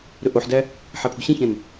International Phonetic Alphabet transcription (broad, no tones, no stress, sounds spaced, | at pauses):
ɾ ɵ ʔ o ħ d æ | ħ æ pʰ o̤ ɕ ẽ ç ɛ̃ n